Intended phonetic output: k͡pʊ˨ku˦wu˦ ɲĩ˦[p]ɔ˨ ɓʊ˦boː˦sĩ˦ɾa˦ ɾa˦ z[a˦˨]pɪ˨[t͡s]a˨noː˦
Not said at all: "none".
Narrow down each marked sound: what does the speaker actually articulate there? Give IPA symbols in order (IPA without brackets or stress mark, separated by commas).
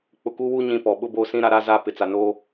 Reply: p, a˦˨, t͡s